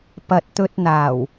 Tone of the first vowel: low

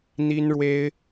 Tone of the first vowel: high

